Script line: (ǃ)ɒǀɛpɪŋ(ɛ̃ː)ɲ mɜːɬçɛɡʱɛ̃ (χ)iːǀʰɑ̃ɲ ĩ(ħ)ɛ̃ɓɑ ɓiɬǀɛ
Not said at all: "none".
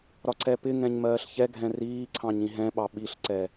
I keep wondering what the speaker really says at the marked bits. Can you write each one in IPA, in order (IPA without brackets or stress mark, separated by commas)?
ɾ, ɛ̃, r, ɦ